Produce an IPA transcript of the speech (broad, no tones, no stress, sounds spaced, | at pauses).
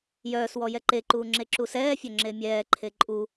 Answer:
j œː s w ɔ j ɛ ǃ e ǃ uː ŋ͡ǁ e ǁ u s ɛː fʲ œ ŋ͡ǁ e mʲ ɛː ǃʰ e ǃʼ u